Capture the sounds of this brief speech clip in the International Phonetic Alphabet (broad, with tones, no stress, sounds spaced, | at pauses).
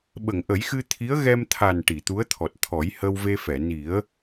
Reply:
ɓ ə˨˩˨ ŋ ʔ ə˨˩˦ j x ɨ˧ t̪ʰ i˧˥ ə̯ ɣ ɛ˧ m t̪ʰ a˨˩ n ʈ i˨˩˨ t̪ u˧˥ ə̯ t̪ʰ ɔ˨˩ t̚ t̪ʰ ɔ˨˩˦ j h ə˧ w v e˧ f ɛ˨˩˨ n i˨˩˦ ə̯